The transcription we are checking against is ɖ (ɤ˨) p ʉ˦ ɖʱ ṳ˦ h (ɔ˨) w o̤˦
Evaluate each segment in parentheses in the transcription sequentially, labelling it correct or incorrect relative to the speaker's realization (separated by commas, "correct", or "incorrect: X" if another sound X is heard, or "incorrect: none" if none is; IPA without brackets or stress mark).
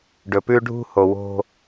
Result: incorrect: ɵ˨, incorrect: o˨